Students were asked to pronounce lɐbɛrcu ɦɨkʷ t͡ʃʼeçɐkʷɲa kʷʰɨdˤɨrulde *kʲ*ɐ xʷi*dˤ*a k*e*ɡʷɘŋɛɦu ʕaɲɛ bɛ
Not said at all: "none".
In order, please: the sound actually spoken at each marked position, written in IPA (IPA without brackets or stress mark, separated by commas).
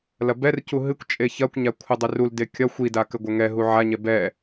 kʲ, d, ɘ